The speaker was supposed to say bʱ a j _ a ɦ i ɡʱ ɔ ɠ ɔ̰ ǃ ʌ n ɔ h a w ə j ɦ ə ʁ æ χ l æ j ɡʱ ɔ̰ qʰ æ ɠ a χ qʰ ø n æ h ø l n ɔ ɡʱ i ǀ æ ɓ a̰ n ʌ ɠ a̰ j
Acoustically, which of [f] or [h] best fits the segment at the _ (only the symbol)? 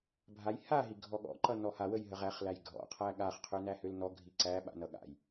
h